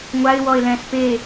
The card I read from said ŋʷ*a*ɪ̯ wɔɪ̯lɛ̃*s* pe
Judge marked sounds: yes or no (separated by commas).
yes, yes